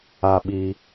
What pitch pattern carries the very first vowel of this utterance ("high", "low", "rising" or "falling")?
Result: low